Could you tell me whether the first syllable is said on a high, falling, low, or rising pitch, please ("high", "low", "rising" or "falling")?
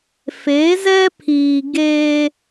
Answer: rising